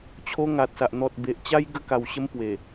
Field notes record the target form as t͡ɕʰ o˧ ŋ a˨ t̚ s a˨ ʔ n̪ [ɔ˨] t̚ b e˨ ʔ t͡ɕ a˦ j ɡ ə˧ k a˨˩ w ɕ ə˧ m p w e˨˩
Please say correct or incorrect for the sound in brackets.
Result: correct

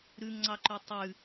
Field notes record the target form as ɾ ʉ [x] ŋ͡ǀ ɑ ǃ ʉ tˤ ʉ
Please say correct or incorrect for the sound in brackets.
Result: incorrect: ŋ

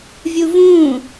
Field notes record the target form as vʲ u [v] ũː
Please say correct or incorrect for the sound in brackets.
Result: correct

